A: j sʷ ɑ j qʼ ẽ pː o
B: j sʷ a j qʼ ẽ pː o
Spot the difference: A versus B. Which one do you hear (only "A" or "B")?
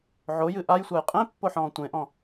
B